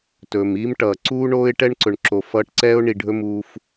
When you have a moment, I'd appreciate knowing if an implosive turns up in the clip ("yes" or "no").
no